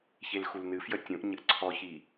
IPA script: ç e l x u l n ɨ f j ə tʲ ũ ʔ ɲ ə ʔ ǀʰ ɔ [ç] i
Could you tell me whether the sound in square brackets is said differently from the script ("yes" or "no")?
no